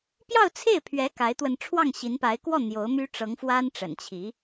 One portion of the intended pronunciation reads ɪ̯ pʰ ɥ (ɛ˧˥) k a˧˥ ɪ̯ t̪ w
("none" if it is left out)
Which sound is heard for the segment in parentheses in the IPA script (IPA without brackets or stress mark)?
ɛ˧˥